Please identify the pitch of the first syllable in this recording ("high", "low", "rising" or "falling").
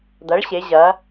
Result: rising